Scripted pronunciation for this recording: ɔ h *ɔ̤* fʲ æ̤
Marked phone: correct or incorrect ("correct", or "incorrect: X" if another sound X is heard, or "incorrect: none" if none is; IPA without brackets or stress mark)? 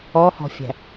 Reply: correct